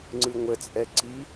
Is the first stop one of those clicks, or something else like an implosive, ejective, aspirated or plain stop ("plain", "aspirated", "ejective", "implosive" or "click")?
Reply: click